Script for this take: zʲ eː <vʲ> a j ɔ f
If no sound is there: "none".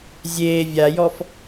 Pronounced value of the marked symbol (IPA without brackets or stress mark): vʲ